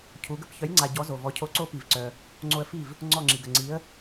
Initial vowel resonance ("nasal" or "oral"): oral